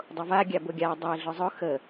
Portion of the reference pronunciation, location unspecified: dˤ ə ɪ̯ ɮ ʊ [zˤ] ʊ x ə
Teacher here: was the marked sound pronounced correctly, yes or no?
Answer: yes